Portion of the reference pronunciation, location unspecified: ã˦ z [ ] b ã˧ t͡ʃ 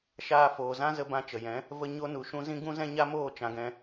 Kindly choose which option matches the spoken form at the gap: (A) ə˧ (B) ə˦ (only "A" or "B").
A